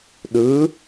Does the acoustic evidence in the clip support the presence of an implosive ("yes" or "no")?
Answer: yes